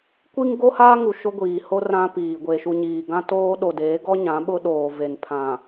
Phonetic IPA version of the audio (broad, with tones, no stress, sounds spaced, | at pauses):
kʷ i˦ ŋ ɡ o˦ h aː˦ ŋ u˨ ʃ ʊ˦ ɡʷ iː˨ h o˦ r ã˦ p iː˨ ɡʷ e˨ ʃ u˨ ɲ iː˨ ɡ ã˦ t oː˦ ɗ o˨ d eː˨˦ ɡ ɔ˦ ɲ ã˨˦ ɓ ʊ˦ ɗ oː˨ v e˨ n pʰ ã˨